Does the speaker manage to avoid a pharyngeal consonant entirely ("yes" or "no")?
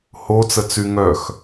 yes